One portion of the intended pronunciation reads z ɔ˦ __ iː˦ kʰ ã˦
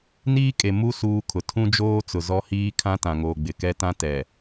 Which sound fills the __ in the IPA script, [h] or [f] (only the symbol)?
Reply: h